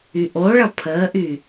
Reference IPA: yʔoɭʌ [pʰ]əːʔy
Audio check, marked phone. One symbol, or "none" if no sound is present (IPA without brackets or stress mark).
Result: pʰ